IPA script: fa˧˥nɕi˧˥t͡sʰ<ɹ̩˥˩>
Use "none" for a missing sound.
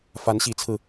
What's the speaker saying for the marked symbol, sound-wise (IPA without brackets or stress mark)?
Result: ɹ̩˧